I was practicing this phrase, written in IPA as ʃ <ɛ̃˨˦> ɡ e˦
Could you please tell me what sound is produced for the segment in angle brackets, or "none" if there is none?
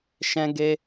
ɛ̃˦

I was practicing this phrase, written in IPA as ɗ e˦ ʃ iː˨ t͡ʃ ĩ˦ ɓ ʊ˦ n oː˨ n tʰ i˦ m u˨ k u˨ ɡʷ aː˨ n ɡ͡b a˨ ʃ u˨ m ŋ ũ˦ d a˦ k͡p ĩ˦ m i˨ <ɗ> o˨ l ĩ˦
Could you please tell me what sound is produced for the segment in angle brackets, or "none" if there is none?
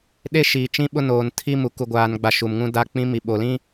ɓ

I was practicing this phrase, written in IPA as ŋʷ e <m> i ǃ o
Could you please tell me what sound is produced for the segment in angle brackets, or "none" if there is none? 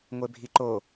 bʱ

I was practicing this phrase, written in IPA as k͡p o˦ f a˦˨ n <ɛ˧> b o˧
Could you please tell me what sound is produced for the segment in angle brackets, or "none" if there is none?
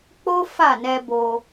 ɛ˧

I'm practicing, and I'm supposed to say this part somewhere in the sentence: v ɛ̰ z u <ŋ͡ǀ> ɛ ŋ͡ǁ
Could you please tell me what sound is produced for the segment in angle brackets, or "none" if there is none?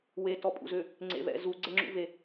ɡ͡ǀ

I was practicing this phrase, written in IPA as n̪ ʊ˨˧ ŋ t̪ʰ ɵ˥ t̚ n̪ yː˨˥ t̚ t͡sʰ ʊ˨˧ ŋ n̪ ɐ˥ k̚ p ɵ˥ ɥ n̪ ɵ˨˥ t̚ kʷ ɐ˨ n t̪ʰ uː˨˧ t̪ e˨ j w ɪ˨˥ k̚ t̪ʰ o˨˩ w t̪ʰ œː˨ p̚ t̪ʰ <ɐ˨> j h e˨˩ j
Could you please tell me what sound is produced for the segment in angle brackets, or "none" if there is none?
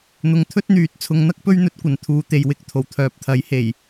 ɐ˨˥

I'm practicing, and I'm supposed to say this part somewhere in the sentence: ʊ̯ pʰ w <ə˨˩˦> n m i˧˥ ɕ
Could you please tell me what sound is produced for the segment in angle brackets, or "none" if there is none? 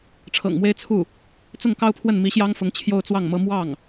ə˥˩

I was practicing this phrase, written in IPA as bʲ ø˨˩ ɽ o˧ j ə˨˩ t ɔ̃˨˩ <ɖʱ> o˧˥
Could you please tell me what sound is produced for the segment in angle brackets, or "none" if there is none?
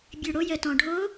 ɖʱ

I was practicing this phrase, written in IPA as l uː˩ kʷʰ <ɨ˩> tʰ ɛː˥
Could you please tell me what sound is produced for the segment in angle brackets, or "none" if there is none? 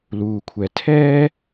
ɛ˩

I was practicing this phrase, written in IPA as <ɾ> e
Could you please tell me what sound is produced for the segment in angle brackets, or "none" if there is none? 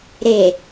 ɾ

